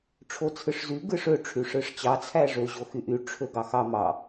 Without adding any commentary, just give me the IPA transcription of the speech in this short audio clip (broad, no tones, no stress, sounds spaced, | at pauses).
ʈ͡ʂʰ o t͡sʰ ɯ ʂ z y ɡ ɯ ʂ ø ʈ͡ʂʰ y ʂ ɯ ʂ t͡ɕ ɑ t͡sʰ æ ʐ ø ʑ o x y ʔ y ʈ͡ʂʰ ø ɡ ɑ x ɑ m ɑ